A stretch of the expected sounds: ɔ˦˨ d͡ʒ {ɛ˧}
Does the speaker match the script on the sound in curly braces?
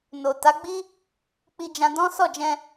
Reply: no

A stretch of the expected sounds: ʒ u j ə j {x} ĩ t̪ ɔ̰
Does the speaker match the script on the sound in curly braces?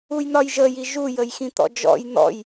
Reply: yes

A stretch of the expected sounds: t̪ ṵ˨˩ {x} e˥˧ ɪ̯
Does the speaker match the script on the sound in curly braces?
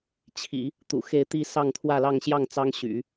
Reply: yes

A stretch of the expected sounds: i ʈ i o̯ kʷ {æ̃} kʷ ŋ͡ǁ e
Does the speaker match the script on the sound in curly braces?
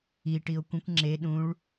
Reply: no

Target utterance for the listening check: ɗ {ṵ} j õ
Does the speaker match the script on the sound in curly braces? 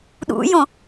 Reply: yes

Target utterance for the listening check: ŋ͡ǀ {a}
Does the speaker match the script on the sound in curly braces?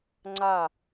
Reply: yes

